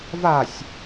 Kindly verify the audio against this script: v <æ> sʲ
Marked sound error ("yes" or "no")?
yes